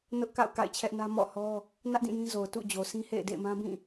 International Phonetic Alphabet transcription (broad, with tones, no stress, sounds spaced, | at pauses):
n ʊ˦ ʔ k a̰˦˨ ʊ̯ k a̰˦˨ ɪ̯ t͡ɕʰ ɛ˦ ʔ n ä˦ m ɔ̰˦˨ h ɔ˦ | n ä˦ ʔ d ĩ˦˨ j ĩ˦ z o˨ ʊ̯ t ṵ˦˨ d͡ʑ o˨ sʰ ĩ˦ h ḛ˦˨ ɪ̯ d ḛ˦˨ ɪ̯ m ã˦ b ĩ˦˨